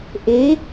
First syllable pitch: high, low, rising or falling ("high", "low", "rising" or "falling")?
rising